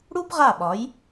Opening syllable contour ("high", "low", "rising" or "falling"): high